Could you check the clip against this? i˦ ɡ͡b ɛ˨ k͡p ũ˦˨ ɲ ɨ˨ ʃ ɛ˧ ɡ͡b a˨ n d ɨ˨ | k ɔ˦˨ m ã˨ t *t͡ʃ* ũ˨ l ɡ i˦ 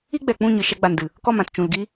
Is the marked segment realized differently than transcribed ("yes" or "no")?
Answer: no